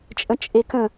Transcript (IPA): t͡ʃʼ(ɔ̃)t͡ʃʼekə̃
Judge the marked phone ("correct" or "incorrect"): incorrect